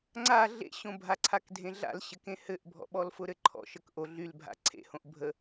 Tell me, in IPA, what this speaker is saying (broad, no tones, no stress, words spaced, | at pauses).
ŋ͡ǀa ɮḛɕõbʱaǀʰak dʱẽɮa̰lɕɘkẽ hɘʔbʱɔ̰ɓɔlfʊ ɾɘǃʰɔ̰ʃ əkʔo ɮylbʱa̰ ǀʰḛhõʔ bʱə